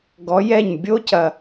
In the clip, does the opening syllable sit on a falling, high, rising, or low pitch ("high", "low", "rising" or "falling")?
rising